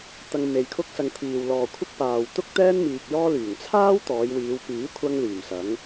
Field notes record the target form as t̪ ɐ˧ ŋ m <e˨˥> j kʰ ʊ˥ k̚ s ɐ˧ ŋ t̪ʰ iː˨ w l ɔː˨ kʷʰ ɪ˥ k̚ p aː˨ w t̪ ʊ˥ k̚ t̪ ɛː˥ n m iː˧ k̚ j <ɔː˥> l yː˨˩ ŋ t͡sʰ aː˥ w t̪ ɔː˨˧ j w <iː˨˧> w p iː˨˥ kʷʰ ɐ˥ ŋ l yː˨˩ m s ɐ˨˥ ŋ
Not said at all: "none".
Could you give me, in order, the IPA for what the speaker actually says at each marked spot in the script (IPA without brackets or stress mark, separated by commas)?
e˨, ɔː˥, iː˨˧